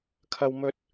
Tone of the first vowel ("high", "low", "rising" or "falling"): high